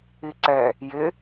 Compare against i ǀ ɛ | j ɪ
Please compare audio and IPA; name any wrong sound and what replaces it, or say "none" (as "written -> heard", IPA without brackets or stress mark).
none